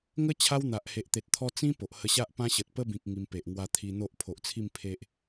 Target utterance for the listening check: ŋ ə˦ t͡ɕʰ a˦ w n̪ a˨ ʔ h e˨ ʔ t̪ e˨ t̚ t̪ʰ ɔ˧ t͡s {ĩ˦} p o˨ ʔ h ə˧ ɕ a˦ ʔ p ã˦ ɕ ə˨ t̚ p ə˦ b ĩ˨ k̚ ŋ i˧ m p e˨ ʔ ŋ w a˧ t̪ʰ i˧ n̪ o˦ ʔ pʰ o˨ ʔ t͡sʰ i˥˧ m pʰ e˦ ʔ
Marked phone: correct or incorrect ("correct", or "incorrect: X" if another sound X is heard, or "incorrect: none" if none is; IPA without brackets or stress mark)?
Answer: correct